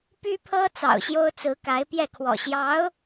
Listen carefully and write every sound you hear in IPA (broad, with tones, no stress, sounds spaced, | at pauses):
p y˥ pʰ ɤ˥ t͡s ɑ̰˨˩ ʊ̯ ɕ j o˥ ʊ̯ t͡s ɹ̩˧˥ k a˧˥ ɪ̯ p j ɛ˥˩ kʰ w ɔ̰˨˩ ɕ j ɑ˧˥ ʊ̯